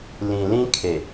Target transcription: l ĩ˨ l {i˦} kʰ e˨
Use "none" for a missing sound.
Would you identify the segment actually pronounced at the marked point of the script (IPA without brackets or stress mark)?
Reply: ĩ˦